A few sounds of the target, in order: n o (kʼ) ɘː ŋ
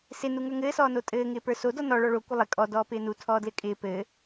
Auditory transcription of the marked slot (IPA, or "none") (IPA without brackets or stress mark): tʼ